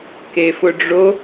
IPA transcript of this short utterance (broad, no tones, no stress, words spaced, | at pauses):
kefʊɖ͡ʐo